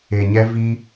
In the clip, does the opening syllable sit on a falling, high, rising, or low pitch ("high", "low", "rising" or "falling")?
low